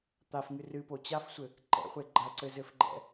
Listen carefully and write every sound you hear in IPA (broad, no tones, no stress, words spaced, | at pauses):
t̪afŋɨ rɨpo t͡ɕafsʷɘ | ǃɛ̰χʷe ɡ͡ǃɐǀɘzɘfɡ͡ǃɛ̰